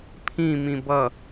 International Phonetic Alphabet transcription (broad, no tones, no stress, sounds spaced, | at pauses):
pʰ ĩ m ĩ b ʌ